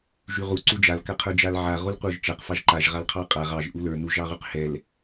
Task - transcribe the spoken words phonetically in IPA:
ʒ y ʁ u ǀ u d͡ʒ a l k a qʰ ə˞ d͡ʒ a l ʕ a ʁ u l qʷ ə˞ ʒ t͡ʃ a q f ɑ ʒ ǃ a ʒ ʁ a l qʰ ɑ qʼ a ʁ ɑ ʒ ʔ u l ə˞ n u ʒ ɑ ʁ y q h ɛ l

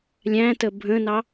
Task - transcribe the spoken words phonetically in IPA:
lʲ æ̃ t ə bʱ ə̃ n ɑ

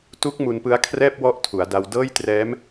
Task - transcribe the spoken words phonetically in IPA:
t u˦˥ k̚ m u˧ n p ɯ˦˥ a̯ kʰ r ɛː˥˩ p̚ w ɔ˦˥ ʔ tʰ u˩˦ a̯ d a˧ w d ɤː˥˩ j t r ɛː˦˥ m

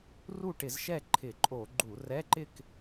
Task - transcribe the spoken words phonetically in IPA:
r u˥˩ ʈ ɪ˧˩˧ z ʃ ɛ˥˩ ǃʰ ɪ˧˩˧ ǃʼ o˧˩˧ ɡ͡ǃ u˧˩˧ r ɛ˧˥˧ ǃ ɪ˥˧ k

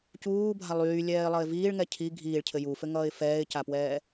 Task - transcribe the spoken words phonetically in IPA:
c uː bʱ a lˠ yː lʲ ɛː ɪ̯ lˠ ʌ ɪ̯ v iː ɭ ŋ ɛ cʰ i ɡʱ iː ɭ cʰ ɘ j u f ɘ ŋ ʌː ɪ̯ f ɛː ɪ̯ c a p w ɛː

